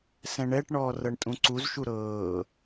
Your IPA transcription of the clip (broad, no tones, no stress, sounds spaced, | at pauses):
s ɛ̃ ɳ ɛ ʈ ɳ ɔː r ɤ ɳ tʼ ũ ǀ u z ʃ u ɾ ɤː